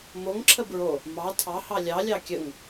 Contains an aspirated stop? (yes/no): yes